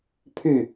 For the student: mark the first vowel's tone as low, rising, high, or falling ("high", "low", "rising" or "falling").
falling